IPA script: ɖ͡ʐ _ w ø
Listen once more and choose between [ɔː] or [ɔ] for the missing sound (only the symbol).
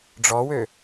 ɔ